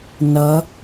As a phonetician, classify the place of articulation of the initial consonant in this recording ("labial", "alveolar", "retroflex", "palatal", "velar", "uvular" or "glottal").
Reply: alveolar